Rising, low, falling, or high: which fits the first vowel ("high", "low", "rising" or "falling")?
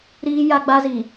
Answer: high